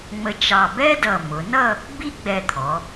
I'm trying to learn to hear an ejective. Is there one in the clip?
no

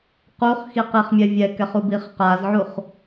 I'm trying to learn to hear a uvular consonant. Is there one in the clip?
yes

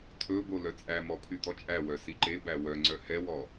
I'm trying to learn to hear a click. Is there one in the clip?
yes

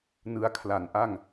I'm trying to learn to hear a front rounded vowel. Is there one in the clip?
no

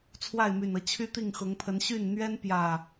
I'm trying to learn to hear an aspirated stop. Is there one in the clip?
yes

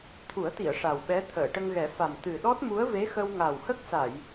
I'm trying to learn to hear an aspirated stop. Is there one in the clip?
yes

